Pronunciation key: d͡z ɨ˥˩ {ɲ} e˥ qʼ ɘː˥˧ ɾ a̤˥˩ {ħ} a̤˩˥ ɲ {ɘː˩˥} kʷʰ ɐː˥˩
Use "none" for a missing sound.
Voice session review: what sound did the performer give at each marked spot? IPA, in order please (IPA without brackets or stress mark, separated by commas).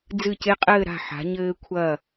c, ħ, ɘː˥